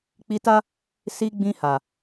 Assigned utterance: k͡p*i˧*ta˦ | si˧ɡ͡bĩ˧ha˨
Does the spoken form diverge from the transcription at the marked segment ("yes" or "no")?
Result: no